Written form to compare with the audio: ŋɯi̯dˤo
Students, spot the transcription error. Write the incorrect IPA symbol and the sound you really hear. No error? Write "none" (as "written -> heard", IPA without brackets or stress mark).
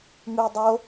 none